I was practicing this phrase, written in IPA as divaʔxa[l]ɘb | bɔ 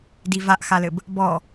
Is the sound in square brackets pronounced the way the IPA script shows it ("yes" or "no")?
yes